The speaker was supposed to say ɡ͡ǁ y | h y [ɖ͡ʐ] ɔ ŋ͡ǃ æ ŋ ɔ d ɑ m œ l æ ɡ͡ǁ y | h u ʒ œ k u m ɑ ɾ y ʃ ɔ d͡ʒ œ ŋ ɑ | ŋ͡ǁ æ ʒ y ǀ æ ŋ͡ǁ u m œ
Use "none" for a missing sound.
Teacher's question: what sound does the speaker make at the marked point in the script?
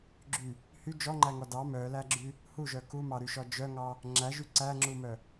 d͡ʒ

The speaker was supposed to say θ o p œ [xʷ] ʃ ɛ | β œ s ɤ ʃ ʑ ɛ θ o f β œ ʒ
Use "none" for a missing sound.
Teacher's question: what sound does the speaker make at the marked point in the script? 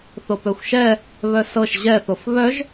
xʷ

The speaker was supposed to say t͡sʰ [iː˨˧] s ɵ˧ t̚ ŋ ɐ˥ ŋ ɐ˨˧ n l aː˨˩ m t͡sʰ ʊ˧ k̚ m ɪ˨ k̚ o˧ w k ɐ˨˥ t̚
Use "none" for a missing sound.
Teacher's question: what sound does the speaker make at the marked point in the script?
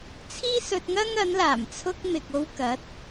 iː˥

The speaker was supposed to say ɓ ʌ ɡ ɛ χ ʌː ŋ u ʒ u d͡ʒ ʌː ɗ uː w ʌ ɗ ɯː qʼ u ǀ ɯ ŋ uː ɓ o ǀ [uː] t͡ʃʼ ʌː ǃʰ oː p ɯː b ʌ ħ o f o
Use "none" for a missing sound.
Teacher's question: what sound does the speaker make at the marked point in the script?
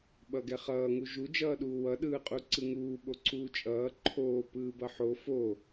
uː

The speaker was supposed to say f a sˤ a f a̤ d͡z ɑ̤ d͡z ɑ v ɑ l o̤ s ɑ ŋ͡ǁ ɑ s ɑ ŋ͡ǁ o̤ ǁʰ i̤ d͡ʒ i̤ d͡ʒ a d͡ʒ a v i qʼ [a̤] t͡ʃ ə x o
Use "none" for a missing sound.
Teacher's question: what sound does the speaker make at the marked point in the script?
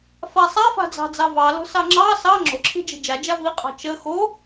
ɑ̤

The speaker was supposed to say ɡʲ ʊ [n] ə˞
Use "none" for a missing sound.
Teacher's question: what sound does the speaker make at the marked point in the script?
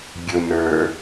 n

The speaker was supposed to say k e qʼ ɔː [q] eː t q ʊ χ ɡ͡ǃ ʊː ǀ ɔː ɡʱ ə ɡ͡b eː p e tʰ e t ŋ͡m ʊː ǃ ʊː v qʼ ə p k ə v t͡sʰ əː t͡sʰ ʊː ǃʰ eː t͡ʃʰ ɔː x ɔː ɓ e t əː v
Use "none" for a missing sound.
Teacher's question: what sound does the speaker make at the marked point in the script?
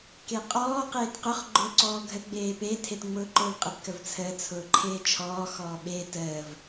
q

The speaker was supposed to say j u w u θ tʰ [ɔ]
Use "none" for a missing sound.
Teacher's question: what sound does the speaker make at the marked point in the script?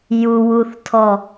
ɔ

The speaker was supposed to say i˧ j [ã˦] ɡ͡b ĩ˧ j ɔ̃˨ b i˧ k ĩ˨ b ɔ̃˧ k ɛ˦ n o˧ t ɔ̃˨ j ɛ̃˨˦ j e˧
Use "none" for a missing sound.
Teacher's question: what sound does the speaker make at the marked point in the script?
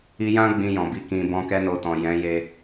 ã˦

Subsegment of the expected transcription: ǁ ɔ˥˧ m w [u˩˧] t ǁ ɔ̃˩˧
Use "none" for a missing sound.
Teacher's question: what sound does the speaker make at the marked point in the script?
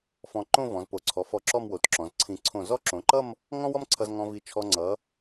o˩˧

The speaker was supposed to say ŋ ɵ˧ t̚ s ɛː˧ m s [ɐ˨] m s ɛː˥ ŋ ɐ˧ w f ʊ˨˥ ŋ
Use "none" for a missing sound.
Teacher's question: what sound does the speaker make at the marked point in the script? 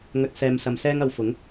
ɐ˧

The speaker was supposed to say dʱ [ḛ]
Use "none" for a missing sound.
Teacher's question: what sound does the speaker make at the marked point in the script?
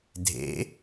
ḛ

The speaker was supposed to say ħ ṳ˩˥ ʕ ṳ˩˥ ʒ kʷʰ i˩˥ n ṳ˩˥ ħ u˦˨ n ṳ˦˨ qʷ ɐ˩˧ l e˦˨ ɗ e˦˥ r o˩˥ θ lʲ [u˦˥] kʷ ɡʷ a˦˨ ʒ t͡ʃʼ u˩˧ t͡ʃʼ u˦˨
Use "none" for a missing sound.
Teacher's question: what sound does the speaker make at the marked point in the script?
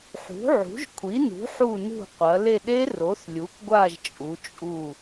u˩˥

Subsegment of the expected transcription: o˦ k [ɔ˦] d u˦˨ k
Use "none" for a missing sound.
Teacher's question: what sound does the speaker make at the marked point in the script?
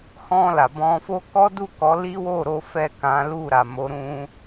ɔ˦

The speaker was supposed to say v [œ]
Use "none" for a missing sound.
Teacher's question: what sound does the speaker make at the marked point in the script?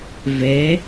ɛ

